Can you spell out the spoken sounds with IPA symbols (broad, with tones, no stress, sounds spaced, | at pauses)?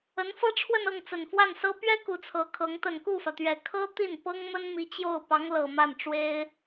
ə˧˥ n f ɤ˥ ʈ͡ʂʰ w ə˥˧ n ɤ˥˩ ŋ t͡s ə˨˩ n f w a˥˩ n s ɤ˥ p ɥ ɛ˥ k u˧˥ t͡sʰ ɤ˧˥ kʰ ɤ˧˥ ŋ t̪ ə˨˩ n k u˥˩ f ä˩ t̪ ɥ ɛ˨˩ kʰ ɤ˥ t̪ i˥˩ n p ɤ˥ ŋ m ə˥ n m i˧˥ t͡ɕ j o˥˩ ʊ̯ p ɑ˧˥ ŋ l ɤ˨˩ m a˥˩ n ʈ͡ʂ w e˥ ɪ̯